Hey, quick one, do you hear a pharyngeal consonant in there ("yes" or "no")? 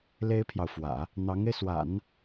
no